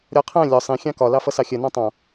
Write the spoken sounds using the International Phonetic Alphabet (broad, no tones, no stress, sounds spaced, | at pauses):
ɾʲ ɒ qʰ æ̃ lʲ ɒ sˤ ĩ xʲ ɑ̃ k ɒ l ɑ f ʌ s ɑ xʲ ɜ n ɑ̃ tˤ ɑ̃